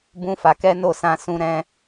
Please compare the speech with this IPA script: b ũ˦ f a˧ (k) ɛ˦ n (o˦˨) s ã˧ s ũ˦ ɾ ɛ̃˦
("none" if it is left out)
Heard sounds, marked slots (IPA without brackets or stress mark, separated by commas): k, o˦˨